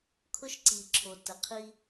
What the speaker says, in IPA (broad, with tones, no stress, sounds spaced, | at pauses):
kʰ ʊ˦ ʃ ǀ i˨ ǁʰ o˨ t ə˨ qʰ i˦